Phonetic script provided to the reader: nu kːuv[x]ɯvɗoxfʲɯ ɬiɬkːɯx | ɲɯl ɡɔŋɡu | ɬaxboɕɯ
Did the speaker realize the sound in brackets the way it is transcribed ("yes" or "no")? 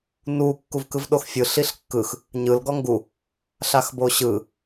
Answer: no